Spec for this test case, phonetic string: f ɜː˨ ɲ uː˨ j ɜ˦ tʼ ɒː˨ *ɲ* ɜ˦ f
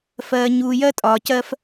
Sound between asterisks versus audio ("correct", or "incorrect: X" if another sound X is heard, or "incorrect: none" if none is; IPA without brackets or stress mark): incorrect: c